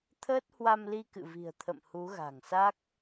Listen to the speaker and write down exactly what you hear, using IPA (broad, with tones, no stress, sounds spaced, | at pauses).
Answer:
t̪ʰ əː˦˥ t̚ h w a˧ m l i˧ k ɨ̰˧˨ v i̤˨˩ ə̯ t̪ʰ ə̰˧˨ m h u˨˦ ɣ a̤˨˩ ŋ s a˦˥ k̚